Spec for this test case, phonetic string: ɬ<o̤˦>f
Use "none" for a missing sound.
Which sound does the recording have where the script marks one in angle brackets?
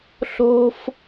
o̤˦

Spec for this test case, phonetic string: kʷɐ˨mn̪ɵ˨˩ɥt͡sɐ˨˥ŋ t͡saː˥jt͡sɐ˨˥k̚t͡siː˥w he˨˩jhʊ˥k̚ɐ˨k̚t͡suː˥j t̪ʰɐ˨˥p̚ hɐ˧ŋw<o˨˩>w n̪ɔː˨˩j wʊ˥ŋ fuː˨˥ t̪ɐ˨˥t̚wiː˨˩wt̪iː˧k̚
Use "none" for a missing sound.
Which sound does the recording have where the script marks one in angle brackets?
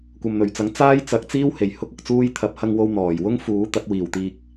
o˧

